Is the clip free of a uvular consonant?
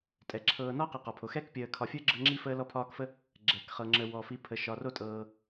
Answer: no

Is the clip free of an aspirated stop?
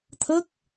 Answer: no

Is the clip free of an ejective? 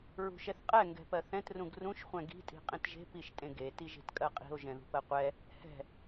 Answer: no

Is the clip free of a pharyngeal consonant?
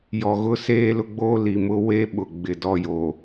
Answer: yes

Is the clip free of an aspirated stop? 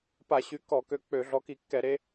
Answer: yes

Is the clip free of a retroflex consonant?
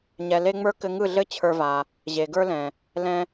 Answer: yes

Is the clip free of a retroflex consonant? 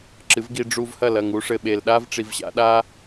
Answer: no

